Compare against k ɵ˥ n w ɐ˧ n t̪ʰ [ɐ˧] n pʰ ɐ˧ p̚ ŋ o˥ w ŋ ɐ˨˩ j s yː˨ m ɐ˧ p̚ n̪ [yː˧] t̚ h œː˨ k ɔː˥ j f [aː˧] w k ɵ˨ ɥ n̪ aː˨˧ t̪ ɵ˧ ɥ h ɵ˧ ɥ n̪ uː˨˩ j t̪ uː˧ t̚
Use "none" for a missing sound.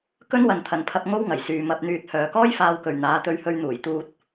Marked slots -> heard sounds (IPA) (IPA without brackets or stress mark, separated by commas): ɐ˨, yː˧, aː˧